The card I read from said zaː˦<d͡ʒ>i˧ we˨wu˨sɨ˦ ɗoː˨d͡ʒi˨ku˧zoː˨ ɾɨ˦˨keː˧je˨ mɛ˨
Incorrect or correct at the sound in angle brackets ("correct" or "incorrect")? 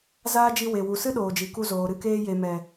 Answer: correct